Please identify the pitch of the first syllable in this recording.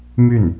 falling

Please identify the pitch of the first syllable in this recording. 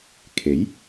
rising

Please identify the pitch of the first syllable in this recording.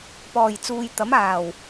low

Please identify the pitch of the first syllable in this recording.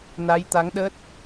rising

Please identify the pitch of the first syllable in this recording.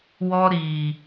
high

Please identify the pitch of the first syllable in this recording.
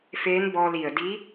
rising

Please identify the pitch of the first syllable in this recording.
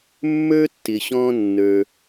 high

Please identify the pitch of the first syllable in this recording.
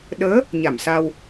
rising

